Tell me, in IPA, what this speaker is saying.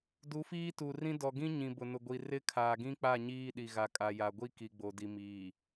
d u˨˦ f iː˦ t u˨ r ĩ˦ d ɔ˨ ɡ ĩ˦ ɲ ĩ˨ b ʊ˨ n ʊ˨ ɡʷ i˨ r ɪ˦ kʰ aː˨ ɡ ĩ˦ k͡p a˦˨ ɲ iː˦ ɗ i˨ ɣ a˨ kʼ a˨ j a˨ ɡʷ i˦ k i˨ ɡ͡b o˨ d i˨ m iː˨

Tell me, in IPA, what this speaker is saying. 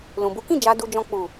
l ũ˨ b u˨˦ k ĩ˦˨ d͡ʒ a˧ d u˧ d͡ʒ ɔ̃˧ k͡p u˨

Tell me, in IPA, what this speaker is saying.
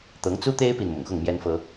t̪ ɤ˨˦ ŋ t͡s u˦ t̪ e˦ ɪ̯ p i˨ n m ʊ̰˨˩ ŋ x ʊ˥˨ ŋ m j ɛ˦ n f ɤ˦

